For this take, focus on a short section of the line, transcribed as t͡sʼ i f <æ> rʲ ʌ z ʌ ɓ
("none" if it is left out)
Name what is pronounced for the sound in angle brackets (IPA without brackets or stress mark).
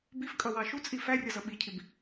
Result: æ